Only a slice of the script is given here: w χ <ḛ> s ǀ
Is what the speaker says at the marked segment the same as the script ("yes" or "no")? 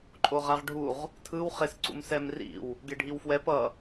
no